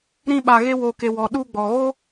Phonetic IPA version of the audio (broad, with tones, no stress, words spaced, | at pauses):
ɾĩ˦ɓa˧ ɣe˦ wo˧ke˧ wɔ˨ɗu˧ɡ͡bɔ˨ɣo˦